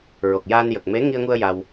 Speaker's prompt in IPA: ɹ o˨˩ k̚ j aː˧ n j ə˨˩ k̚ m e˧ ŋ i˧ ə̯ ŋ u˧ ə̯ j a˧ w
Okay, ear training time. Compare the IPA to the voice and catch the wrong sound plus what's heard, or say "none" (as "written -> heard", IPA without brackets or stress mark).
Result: e˧ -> e˧˥